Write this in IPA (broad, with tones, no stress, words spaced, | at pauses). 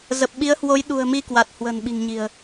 zə˨˩p̚ɓi˨˦ə̯hwo˨˦j ɗṳ˨˩ə̯mi˧ kwa˨˩t̚hwə̤˨˩n ɓi̤˨˩ŋɲi̤˨˩ə̯